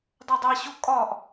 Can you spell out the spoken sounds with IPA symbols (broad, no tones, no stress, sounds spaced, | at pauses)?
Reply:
dˤ o dˤ æ ɕ o kʼ ɒ ʔ